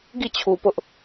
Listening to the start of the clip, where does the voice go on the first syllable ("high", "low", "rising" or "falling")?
falling